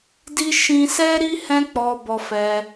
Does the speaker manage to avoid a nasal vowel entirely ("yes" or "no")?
no